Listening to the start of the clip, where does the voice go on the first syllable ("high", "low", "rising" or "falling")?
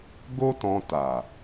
high